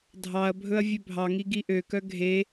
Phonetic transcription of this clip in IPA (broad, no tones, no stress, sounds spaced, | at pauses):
dʱ ɑ ɐ̯ bʱ ɵ ɐ̯ vʲ ø bʱ ɑ ŋ i ɡ i ʔ ø k œ ɡʱ e